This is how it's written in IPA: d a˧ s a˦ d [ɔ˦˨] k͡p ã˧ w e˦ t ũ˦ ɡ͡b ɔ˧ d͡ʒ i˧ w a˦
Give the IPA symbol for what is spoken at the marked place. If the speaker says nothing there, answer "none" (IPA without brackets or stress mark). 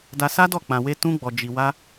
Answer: ɔ˦˨